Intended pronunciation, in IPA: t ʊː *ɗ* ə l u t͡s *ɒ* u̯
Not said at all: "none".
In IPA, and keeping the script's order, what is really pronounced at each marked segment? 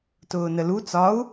n, ɒ

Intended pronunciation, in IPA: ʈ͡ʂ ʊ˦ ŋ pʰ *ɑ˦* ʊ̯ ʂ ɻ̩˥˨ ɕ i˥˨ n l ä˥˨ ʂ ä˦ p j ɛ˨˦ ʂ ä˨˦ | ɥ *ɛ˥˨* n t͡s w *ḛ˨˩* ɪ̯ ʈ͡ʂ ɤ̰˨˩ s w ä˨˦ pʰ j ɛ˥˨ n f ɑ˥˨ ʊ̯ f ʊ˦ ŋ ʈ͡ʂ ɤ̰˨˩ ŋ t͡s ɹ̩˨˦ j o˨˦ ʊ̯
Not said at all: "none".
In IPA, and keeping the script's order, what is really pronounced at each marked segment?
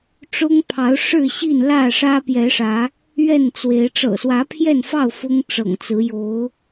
ɑ˨˦, ɛ˥˨, e˨˦

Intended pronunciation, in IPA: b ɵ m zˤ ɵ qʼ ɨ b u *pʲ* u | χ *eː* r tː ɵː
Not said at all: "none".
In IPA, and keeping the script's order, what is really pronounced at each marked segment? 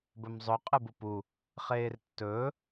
p, eː

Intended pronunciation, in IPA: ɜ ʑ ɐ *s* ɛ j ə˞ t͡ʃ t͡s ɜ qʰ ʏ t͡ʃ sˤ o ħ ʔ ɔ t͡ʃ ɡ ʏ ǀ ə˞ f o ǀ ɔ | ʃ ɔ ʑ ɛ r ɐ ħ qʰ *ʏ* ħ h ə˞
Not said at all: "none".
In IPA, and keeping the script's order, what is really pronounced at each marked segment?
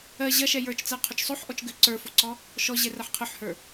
ʃ, ʏ

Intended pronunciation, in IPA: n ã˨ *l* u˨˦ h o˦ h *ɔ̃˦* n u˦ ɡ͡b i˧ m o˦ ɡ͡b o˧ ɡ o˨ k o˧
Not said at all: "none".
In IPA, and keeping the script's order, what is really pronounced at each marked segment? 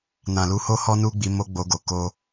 l, ɔ˦

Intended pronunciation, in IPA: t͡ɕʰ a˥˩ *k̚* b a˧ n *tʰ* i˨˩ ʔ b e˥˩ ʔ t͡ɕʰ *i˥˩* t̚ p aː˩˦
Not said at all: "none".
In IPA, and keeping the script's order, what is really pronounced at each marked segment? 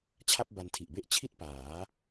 p̚, tʰ, i˥˩

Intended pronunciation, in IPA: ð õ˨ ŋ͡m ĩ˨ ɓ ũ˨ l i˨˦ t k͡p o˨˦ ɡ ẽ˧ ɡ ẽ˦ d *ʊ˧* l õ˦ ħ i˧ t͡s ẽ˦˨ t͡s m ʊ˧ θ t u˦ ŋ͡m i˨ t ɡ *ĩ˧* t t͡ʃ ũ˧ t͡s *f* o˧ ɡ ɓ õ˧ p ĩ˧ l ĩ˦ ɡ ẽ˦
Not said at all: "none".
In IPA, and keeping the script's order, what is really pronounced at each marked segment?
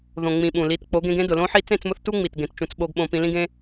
ʊ˨, ẽ˧, ɓ

